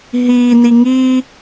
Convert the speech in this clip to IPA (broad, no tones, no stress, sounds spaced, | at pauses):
ɦ iː n i ŋ iː